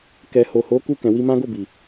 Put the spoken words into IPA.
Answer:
k ɛ˨ h o˨ h o˨˦ k u˧ k ɛ̃˨ w i˧ m ã˦ ɡ o˦˨ b i˨

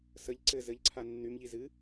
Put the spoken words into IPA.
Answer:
s ə ʎ ǀ ɘ z ɘ ʎ ǀʰ a nː y m ʎ i z ɨ

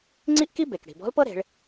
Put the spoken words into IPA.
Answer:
ŋ͡ǀ i˥ ʔ k i˥ b e˩ k ɽ i̤˩ b ɔ̤˧˥ l p ɤ˥ ɾ e̤˩˧ ɭ

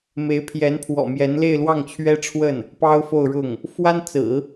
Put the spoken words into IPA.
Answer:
m e˧˥ ɪ̯ pʰ j ɛ˧˥ n pʰ w ɔ̰˨˩ m j ɛ˧˥ n l e˥˧ ɪ̯ l w ɑ˥˩ ŋ t͡ɕʰ ɥ ɛ˥ ʈ͡ʂʰ w ə˥˩ n | p ɑ˥ ʊ̯ f o˥˧ ʊ̯ ɻ ʊ˥˩ ŋ | f w a˥ n t͡s ɹ̩˨˩˦

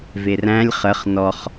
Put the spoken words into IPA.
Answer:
v e r æ̃ lʲ χ ə χ n ɔ χ

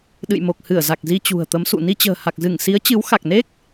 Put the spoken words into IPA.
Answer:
ɗ ɨ̰˧˨ j m o˨˩ k̚ h ɨ˧˩ ə̯ z a˨˩ k̚ z i˧ t͡ɕ ṳ˨˩ ə̯ t̪ ə˨˦ m s ṵ˧˨ n i˧ t͡ɕ ə̤ː˨˩ h a˨˩ k̚ z ɨ˧˩ ŋ s i˨˦ ə̯ t͡ɕ ɨ˨˦ w x a˨˩ k̚ n e˦˥ k̚

